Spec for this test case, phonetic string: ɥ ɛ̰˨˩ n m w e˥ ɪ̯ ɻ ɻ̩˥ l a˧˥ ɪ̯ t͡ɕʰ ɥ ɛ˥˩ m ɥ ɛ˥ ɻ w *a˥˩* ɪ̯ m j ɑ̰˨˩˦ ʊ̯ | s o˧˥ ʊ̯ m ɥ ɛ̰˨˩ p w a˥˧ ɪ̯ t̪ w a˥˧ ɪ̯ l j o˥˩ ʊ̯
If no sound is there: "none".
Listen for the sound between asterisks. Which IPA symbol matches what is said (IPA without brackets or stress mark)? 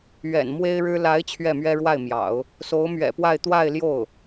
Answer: a˥˩